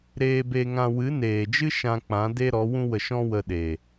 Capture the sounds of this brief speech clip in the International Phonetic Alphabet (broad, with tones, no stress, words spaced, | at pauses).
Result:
ɾeː˧be˧ŋã˧ wɨ˨˦neː˨d͡ʒɨ˦ ʃã˧k͡pã˨˦de˦ɾɔ˨˦ wũ˦wə˧ʃɔ̃˦wə˧ ɗe˨